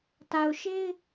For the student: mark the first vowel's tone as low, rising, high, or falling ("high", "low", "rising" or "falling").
low